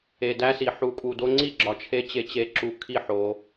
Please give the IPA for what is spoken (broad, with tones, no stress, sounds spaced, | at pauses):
e˨ d æ˦ s i˨ ħ u˨ kʼ u˨ d o˧ ŋ͡ǀ i˦˨ ɡ͡ǁ ɒ˧ t͡ʃʰ e˦ t͡ɕ e˧ t͡ɕ e˧ ǁ u˧ kʰ i˦˨ ħ o˧